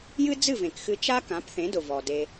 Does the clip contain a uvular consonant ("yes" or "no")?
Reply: no